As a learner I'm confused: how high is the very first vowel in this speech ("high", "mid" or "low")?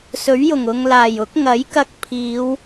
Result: mid